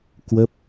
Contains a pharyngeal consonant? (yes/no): no